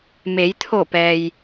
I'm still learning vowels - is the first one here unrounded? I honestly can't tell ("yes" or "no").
yes